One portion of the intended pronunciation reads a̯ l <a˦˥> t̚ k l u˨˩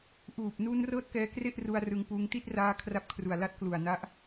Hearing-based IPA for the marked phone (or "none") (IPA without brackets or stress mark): a˦˥